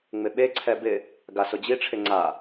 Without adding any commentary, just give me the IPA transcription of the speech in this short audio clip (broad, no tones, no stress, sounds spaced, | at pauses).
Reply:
ŋ͡m ɪ ɓ e ǀʰ ɛ b ɪ | ɡ a s ʊ d͡ʑ i ʈ͡ʂʰ ɪ ŋ͡ǀ a